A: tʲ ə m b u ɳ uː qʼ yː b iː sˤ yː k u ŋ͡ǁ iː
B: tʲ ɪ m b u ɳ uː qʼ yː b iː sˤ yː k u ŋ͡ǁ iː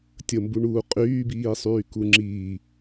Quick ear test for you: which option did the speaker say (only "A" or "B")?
A